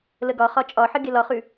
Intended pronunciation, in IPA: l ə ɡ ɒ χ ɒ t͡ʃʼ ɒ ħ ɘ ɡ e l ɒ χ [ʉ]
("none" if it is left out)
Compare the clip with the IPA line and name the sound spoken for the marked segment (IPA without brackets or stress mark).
ʉ